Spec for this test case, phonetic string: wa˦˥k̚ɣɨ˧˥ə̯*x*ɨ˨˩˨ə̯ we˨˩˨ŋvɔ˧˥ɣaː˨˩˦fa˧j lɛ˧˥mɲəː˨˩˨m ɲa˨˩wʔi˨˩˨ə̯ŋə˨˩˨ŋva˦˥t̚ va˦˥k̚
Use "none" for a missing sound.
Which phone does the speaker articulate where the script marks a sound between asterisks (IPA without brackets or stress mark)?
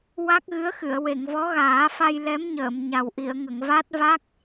x